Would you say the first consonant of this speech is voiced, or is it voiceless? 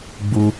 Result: voiced